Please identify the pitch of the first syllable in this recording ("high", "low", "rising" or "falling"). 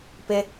high